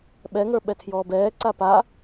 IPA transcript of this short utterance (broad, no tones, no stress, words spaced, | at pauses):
ɓɛŋə˞ ɓɛtʰjɔːbɛː ǀapa